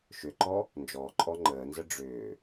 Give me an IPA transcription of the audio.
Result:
ʃ ʏ ǃ ɔ | n d͡ʒ ɔː ǃʼ ɔ ŋ͡ǃ əː n z ə ɖ͡ʐ ʏː

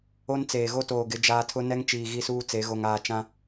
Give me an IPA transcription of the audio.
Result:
o˦ n t͡s eː˨ ɣ o˦ t oː˨ ɡ ɪ˨˦ d͡ʒ aː˦ tʰ ʊ˦ n ɛ˦ ŋ t͡ʃ iː˨ ɣ i˦ s uː˦ t͡s e˨˦ ɣ o˨ ŋ aː˦˨ t͡ʃ ã˦

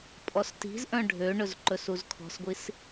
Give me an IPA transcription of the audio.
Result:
pʼ ɔ s t i̤ z ʔ œ̃ ɖʱ ø ɳ ɵ z ǃ ɵ s u z kʰ ɔ̤ s ɡʷ i s

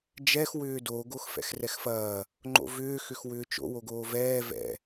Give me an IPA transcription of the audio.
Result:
d͡ʒ ɛ x w ʏː d o ɡ o x f ɛ̰ x r ɛ x f ɐː | ŋ͡ǃ o̰ v ʏː x ʏ x w ʏː t͡ʃ o̰ w o ɡ oː v ɛː v ɛ̰

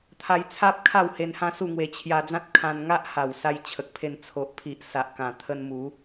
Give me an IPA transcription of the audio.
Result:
t̪ʰ a˧ j t͡sʰ a˦ p̚ kʰ a˥˧ w h e˧ n h ã˦ s u˥˧ ŋ w e˧ t͡ɕʰ j a˧ d͡z ã˦ t̚ kʰ ã˧ n ŋ a˦ ʔ h a˨˩ w s a˧ j t͡ɕʰ ə˨ k̚ pʰ e˧ n t͡sʰ o˨ ʔ pʰ i˨ ʔ s a˨ ʔ k ã˨˩ t̪ʰ ə˧ n m u˨˦

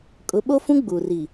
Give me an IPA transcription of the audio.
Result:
kʼ ʊ˨˦ ɓ o˦ f ũ˦ ɡ͡b u˨ r i˨

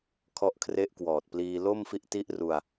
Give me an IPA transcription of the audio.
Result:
kʰ ɔ˦˥ ʔ kʰ r e˦˥ ʔ k w ɔː˨˩ t̚ p l iː˧ l o˥˩ m f i˦˥ ʔ t i˦˥ ʔ r u˧ a̯

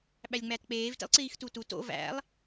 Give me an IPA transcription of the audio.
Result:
ɓ æ lʲ ŋ͡m æ t k͡p eː v t ḭ lˠ ǀ iː x t u t u t o̰ v æ̰ lˠ

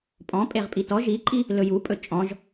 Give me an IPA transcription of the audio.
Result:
pʼ ɔ̃ pʼ e ʁ pʼ i t ɔ ʒ i ǃʼ i | l ɵ j u pʼ ɵ t͡ʃʼ ɔ̃ ʒ

